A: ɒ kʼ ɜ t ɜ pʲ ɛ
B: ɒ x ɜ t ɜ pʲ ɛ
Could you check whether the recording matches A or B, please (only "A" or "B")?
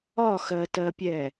B